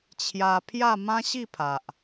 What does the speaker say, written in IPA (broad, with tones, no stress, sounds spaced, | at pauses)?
t͡ɕʰ j a˧ pʰ j a˥˧ m ã˦ ɕ i˥˧ pʰ a˨ ʔ